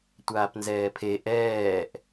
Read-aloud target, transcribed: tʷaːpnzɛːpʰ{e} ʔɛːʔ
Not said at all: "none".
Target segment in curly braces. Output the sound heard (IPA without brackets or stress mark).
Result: e